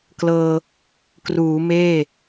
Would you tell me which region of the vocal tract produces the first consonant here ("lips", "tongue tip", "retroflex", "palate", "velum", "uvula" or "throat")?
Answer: velum